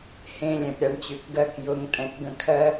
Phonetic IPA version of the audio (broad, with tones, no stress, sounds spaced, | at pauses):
h ẽ˧ lʲ ɛ̃˨ p ɾʲ a˨˦ ɳ t͡ɕ ʉ˨ k ɡ ɜ˧ k j ʊ˨˦ ŋ tʼ ɛ̃˨ k ɡ ə̃˧ kʰ ɜ˦